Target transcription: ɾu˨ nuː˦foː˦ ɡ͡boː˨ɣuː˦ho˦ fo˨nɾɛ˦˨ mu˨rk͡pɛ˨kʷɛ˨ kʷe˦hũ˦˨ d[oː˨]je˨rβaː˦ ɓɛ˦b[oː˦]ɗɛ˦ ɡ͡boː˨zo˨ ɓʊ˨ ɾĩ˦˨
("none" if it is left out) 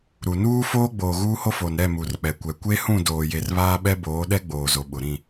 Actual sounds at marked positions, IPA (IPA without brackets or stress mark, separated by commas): oː˨, oː˨˦